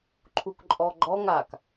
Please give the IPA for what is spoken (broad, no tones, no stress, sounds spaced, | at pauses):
ǃʰ u k ǃʼ ɔ ɡ͡ǃ ɔ ŋ a k